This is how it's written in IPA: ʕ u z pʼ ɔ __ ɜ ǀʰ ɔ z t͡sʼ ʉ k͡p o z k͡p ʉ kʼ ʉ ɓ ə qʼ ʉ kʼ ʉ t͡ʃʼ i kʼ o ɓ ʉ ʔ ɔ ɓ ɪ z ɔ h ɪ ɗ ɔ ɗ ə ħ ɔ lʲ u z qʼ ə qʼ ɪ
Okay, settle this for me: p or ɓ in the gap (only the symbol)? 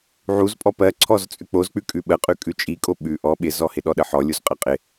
p